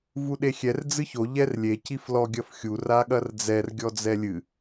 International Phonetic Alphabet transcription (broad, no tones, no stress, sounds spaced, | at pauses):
v u ɗ e xʲ ɛ r d͡z ɨ ç o ʎ ɛ r lʲ e c i f l ɔ ɡʲ ɐ f xʲ u r a ɠ ɐ r d͡z ɛ r ɡʲ ɔ d͡z ɛ lʲ ɨ